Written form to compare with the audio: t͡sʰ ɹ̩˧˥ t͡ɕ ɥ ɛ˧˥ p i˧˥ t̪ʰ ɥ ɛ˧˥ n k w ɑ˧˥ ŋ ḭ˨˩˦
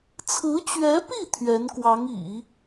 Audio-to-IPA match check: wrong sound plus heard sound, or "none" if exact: i˧˥ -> i˥˩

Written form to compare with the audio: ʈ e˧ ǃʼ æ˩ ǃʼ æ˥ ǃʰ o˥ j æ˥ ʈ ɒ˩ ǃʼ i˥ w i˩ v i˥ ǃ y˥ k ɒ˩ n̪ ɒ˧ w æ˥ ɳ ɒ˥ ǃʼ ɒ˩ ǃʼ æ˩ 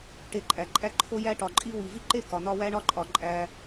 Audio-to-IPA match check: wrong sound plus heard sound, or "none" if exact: y˥ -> e˥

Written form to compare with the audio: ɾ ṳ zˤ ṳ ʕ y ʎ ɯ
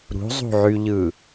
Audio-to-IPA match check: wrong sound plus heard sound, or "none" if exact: none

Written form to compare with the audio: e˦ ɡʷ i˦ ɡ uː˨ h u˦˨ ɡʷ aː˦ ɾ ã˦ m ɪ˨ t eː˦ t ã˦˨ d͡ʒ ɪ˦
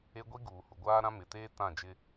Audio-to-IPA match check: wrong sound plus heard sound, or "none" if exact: u˦˨ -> u˨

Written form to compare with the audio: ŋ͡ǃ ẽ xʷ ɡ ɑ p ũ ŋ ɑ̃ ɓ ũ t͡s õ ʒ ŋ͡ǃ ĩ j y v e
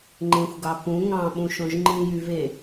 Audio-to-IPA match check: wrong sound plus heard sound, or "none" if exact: t͡s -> ʃ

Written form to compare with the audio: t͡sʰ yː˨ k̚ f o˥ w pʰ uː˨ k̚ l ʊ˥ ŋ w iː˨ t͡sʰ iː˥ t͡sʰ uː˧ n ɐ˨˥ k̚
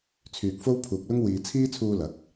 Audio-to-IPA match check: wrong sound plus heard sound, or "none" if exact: n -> l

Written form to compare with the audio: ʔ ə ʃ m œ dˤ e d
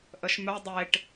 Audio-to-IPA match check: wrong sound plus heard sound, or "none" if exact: d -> ʈ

